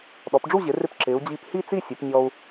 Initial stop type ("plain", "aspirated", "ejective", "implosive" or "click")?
implosive